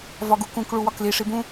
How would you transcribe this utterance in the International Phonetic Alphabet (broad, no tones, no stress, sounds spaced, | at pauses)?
v ɒ ɡ u k ũ k ɭ u w ɒ k l i ʂ i b ũ